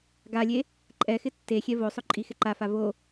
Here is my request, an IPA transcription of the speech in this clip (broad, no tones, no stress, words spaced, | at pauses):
ɡalʲe | ǃʼɛxɪ tːexʲɛ vosˤʊ ǃʼixɪǃafa vo